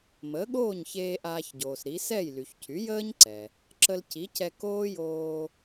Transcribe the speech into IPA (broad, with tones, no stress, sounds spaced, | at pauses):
m əː˩˥ ɠ oː˥˩ ɲ ç eː˧ ʔ aː˧ ç ɟ oː˩ s ɾ i˩˥ s ɛ˥˩ j l y˩ ç cʰ y˩˥ j əː˥ ɲ ǀ ɛ˩ | ǁ ə˧ l cʰ i˩˥ cʰ ɛ˧ k oː˥ j oː˧